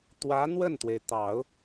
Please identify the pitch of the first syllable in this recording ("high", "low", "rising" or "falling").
rising